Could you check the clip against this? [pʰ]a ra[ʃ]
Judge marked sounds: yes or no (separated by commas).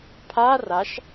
yes, yes